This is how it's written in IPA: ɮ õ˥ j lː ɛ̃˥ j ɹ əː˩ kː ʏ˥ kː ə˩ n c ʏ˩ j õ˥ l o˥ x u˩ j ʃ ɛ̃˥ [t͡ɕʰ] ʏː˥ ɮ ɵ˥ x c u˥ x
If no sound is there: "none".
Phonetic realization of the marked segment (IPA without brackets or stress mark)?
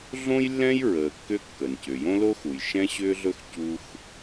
ɕ